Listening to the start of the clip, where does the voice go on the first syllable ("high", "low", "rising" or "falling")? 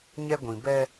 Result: high